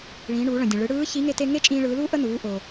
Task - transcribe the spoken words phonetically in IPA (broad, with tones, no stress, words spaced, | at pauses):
ɭĩː˩˧ɳuː˩˧ɭə̃˩dʲə̃˩ ɭɯ˩˧ɽɯː˧˥ çi˧˥ ŋe˥te˥ ŋe˥t͡ʃʼĩː˧ɭɯː˩˧luː˥ ʔə˥nuː˩˧ ʔo˩